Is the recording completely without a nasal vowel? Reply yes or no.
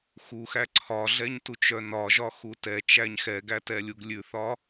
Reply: yes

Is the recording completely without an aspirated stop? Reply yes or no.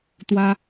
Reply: yes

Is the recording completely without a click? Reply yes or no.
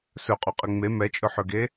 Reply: yes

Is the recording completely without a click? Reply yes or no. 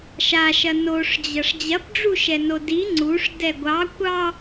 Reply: no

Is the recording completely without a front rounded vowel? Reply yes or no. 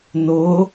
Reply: yes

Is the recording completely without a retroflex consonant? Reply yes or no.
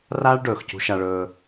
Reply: no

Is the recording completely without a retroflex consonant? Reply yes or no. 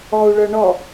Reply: no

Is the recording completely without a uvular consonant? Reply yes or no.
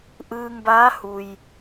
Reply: yes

